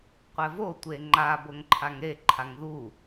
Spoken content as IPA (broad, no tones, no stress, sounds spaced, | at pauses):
qʷ ɛ v o tʷ e ŋ͡ǃ a b o ŋ ǃʰ a ŋ ɾ e ǃʰ a ŋ ð u